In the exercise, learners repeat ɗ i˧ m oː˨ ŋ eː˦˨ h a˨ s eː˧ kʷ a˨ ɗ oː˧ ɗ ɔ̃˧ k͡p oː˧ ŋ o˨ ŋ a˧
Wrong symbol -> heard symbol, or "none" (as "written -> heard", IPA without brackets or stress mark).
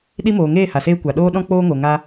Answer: none